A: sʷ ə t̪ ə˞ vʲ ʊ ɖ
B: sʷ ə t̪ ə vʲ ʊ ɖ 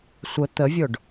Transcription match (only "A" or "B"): B